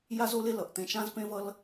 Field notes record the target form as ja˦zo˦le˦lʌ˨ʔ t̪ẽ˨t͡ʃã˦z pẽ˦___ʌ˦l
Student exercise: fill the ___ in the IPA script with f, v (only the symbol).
v